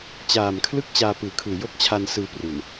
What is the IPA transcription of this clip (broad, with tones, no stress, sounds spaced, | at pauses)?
t͡ɕ aː˨˩ m kʰ l ɯ˥˩ k̚ t͡ɕ aː˧ p ɯː˨˩ kʰ ɯː˨˩ j o˥˩ k̚ t͡ɕʰ a˧ n s ɯː˧ p r u˨˩ n